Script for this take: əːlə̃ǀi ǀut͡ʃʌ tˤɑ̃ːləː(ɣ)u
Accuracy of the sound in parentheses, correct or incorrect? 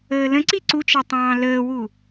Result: incorrect